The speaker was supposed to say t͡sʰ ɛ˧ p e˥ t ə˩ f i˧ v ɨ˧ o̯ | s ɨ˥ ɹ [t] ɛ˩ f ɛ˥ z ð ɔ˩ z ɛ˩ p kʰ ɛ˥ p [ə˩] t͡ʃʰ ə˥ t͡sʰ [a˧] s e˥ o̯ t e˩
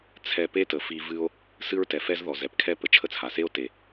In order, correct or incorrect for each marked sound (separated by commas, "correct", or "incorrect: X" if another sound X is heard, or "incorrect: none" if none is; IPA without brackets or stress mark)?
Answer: correct, correct, incorrect: a˩